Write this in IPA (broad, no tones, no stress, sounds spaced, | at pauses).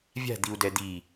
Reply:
vʲ a̤ d̪ i u̯ d ɛ d̪ i